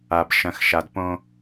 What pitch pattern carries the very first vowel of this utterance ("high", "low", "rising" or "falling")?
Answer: low